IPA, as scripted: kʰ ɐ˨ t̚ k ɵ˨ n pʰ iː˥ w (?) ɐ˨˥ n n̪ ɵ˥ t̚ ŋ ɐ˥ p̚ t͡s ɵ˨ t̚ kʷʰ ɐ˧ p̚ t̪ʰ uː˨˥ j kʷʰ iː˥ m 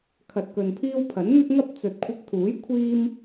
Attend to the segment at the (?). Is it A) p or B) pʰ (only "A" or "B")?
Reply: B